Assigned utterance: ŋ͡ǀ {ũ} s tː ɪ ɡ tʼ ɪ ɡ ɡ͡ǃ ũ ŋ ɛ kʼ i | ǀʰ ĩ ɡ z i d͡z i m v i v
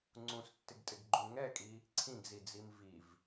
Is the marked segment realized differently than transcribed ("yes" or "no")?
no